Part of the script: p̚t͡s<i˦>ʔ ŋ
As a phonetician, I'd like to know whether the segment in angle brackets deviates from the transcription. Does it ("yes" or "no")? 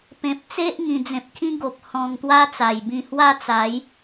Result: yes